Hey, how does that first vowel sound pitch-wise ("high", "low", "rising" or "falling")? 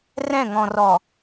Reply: falling